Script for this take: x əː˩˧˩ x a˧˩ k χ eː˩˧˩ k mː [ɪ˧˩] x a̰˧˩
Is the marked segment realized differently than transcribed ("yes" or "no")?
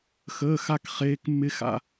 no